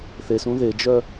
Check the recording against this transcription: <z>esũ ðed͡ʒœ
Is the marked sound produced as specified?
no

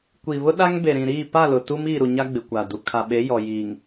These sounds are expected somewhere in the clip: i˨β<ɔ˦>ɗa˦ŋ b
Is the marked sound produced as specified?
no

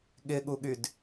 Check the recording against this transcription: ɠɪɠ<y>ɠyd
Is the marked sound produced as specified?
no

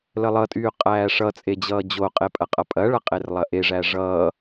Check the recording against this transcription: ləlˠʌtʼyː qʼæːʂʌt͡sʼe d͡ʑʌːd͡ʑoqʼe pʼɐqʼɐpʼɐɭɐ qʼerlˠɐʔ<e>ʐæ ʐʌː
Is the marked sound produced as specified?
yes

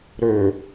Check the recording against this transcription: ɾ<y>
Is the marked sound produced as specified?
no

